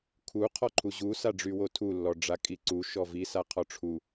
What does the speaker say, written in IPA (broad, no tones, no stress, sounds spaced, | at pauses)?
kʰ u qʰ ɔ ǃʰ u ʑ u s a ɖ͡ʐ y w o tʰ u lː ɔ ɖ͡ʐ a kʼ i ǀ u ʃ ɔ v i s a qʰ ɔ ʈ͡ʂʰ u